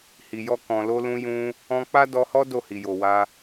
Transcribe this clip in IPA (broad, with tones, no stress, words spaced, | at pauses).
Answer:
hi˨jɔ˧ kɔ̃˨lo˧lũ˧ jũ˧ | ɔ̃˧ k͡pa˦ dɔ˧hɔ˦ do˦˨hi˨jo˨wa˧